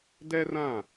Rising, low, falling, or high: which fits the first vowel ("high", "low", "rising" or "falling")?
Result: high